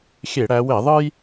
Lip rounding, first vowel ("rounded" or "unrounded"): unrounded